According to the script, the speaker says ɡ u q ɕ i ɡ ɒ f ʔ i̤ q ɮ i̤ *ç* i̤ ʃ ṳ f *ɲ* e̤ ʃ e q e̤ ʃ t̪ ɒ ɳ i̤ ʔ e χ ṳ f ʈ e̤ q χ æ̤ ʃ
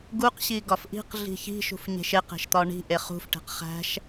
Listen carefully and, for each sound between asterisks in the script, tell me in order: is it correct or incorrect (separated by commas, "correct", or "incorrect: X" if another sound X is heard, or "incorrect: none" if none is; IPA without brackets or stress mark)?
correct, correct